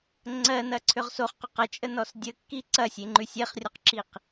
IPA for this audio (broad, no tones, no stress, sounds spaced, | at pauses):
ŋ͡ǀ ɜ n ɐ ǀʰ ʏ ʁ s o χ q ʏ q ɐ t͡ʃʼ ə n ɔ s dʲ ə kː i ǀ ɐ sʲ e ŋ͡ǃ ʉ sʲ e χ rʲ ɔ q ǁ i q